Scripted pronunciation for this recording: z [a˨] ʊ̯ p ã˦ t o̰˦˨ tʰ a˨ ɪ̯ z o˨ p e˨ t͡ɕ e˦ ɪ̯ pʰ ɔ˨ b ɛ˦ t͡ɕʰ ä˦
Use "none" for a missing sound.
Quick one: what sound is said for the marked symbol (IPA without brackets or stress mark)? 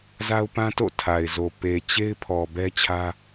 a˦